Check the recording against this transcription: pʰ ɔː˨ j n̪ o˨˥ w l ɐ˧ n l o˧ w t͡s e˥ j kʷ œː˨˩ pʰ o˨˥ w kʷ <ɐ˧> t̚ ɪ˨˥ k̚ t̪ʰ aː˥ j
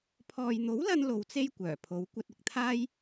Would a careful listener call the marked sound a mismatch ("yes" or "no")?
no